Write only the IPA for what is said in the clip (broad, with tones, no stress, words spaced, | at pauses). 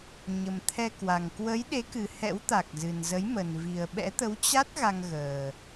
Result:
ɲə˨˩mt̪ʰɛ˧kwa˨˩ŋ kwə˨˦jɗe˨˦kɨ˨˩ hɛ̰˧˥wt̪a˨˩k̚zɨ˨˩nzə˨˦j mə˨˩nvi˨˩ə̯ɓɛ̰˧˥ t̪ə˨˦wt͡ɕa˦˥t̚ ɣa˧ŋ ɣəː˨˩